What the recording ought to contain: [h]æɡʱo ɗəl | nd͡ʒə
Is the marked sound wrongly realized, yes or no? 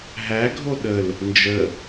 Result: yes